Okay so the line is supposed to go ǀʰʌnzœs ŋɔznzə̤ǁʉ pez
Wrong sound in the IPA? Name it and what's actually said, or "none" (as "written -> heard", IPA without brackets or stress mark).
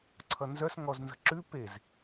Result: none